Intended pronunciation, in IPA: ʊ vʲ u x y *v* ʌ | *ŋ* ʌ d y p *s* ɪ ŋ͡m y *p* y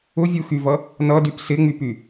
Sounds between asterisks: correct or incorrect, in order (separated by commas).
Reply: correct, incorrect, correct, correct